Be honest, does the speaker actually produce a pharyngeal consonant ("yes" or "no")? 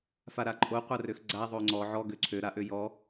yes